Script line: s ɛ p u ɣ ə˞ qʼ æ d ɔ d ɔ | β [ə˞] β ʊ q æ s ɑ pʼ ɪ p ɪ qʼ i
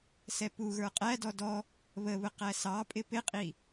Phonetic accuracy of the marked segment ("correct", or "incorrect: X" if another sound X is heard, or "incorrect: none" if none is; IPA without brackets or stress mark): incorrect: ə